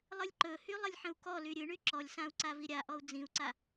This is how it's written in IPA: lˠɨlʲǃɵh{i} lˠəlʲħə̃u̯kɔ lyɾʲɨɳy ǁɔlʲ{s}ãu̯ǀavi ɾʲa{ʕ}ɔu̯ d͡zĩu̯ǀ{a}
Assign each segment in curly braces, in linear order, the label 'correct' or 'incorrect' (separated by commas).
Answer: incorrect, correct, incorrect, correct